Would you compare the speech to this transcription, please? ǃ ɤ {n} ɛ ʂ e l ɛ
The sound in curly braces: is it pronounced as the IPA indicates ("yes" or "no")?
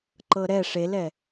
no